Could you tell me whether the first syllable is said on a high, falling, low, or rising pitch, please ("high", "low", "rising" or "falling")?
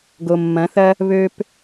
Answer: low